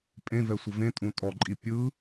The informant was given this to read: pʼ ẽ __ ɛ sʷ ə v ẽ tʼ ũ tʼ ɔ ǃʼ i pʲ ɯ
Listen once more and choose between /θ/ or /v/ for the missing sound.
v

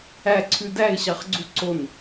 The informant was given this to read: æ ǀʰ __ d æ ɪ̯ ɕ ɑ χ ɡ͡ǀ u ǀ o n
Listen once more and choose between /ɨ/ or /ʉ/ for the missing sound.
ʉ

